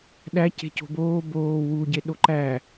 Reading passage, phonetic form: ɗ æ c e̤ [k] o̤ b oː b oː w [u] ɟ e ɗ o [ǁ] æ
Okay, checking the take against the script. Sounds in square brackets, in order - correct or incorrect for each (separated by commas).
incorrect, correct, incorrect